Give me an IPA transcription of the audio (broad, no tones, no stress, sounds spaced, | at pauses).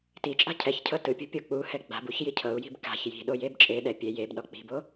t i t͡ʃʼ a̤ cʰ ɛ ç cʰ ɤ t ɯ pʲ o̤ pʲ o k͡p u h ɛ ɡ͡b a̤ b u ç j i cʰ ɤ u̯ j i̤ b k a̤ ç j i̤ ɗ o j e b t͡ʃʼ e ɗ ɛ pʲ e j e b ɗ ɔ k͡p i̤ b o